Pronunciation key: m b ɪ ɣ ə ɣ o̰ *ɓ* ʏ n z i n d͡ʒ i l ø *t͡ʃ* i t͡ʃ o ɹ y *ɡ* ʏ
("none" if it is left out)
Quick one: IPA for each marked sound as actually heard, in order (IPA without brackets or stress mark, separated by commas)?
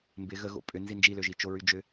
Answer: pʼ, ʒ, d͡ʒ